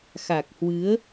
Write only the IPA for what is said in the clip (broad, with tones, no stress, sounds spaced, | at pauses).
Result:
x a˨˩ k̚ h w ɨ˨˦ ə̯